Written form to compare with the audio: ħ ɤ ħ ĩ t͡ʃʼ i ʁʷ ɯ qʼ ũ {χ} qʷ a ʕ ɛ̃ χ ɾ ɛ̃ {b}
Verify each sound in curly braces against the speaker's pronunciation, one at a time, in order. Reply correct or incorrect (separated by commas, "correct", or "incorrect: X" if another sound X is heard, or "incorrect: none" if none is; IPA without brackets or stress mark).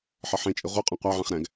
incorrect: none, incorrect: ɡ